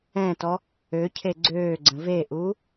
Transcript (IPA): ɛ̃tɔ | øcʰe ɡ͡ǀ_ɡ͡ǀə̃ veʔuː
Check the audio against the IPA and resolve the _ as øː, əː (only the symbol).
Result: øː